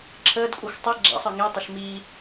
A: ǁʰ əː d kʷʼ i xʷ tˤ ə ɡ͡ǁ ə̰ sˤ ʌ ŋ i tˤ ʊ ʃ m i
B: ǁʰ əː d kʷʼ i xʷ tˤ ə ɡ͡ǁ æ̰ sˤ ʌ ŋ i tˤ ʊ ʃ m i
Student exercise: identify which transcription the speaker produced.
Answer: B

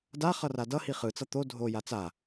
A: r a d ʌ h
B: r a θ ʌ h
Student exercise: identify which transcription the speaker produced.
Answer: A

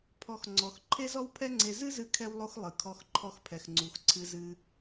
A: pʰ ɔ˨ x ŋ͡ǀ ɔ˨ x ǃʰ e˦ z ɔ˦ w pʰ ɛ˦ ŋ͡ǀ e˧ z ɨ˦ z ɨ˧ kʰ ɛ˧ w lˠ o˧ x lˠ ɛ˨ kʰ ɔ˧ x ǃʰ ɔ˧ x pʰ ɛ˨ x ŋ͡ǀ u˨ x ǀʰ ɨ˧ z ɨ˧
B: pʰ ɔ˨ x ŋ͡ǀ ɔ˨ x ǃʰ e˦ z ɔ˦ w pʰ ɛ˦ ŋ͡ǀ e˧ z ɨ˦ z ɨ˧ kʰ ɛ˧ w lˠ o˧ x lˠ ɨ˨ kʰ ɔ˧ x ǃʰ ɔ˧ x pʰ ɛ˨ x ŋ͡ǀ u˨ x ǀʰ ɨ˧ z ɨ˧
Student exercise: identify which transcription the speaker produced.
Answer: B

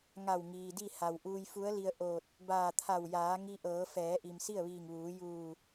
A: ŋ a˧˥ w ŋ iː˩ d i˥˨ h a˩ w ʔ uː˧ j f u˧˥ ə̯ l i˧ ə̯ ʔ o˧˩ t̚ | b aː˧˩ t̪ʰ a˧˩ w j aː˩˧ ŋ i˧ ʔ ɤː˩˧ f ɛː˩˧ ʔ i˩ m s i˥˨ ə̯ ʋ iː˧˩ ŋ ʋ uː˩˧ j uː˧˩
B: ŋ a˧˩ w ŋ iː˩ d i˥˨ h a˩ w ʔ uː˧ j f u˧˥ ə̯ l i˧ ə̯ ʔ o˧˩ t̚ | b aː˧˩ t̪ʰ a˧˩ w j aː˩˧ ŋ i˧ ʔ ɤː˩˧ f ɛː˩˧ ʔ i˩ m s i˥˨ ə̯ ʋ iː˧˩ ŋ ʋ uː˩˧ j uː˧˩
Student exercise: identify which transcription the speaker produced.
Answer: B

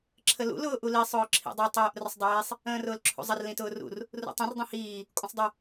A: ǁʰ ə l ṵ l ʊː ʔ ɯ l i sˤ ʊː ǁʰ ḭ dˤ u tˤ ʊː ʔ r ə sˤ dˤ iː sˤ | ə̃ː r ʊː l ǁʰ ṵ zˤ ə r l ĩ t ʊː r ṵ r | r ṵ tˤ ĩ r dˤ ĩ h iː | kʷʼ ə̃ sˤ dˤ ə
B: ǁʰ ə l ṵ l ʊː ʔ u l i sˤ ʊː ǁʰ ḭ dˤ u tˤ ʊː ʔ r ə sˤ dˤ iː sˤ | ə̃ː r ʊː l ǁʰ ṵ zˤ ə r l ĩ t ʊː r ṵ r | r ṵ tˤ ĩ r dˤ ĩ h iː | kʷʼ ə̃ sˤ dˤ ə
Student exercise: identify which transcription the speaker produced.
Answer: B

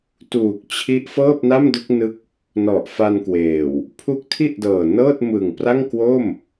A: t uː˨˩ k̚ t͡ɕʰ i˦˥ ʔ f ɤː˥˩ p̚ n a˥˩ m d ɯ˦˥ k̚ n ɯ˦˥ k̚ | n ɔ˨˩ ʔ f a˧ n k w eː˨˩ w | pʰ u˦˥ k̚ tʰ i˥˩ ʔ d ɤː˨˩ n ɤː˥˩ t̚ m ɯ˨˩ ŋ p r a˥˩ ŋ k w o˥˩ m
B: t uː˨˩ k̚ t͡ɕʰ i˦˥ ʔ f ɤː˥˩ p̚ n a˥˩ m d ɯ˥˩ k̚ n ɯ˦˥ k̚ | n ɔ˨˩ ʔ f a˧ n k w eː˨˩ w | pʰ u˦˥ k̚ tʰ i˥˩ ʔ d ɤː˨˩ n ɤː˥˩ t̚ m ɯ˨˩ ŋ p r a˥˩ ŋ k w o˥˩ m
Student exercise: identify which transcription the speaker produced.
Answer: B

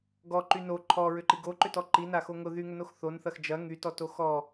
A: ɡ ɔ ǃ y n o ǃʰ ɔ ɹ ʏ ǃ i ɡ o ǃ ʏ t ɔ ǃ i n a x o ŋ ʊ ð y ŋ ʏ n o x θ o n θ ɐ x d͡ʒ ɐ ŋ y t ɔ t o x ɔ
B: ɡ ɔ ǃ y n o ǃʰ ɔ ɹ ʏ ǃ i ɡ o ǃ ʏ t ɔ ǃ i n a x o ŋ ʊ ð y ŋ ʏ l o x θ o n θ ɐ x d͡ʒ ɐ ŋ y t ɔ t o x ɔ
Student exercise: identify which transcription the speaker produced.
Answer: A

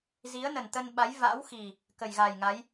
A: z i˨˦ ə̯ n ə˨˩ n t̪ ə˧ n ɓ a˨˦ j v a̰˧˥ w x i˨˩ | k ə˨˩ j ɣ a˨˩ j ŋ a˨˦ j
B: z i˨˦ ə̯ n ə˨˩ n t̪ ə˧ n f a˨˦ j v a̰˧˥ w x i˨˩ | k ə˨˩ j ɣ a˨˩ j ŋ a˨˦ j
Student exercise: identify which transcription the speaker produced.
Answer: A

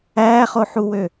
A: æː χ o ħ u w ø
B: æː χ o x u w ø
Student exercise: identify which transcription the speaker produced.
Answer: A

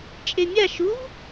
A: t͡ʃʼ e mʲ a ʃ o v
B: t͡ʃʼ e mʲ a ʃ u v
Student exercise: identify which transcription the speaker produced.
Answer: B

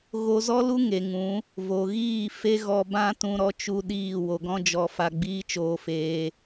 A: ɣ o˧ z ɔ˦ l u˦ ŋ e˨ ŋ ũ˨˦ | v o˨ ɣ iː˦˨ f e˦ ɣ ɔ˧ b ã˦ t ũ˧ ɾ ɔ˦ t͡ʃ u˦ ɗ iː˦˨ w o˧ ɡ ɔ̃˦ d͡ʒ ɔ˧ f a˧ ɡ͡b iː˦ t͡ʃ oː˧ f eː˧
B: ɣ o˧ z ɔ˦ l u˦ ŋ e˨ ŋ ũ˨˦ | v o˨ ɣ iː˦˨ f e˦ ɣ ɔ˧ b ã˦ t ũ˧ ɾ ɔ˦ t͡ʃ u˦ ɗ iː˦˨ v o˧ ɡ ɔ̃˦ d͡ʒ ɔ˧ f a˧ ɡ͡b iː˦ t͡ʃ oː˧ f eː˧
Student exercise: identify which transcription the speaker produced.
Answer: A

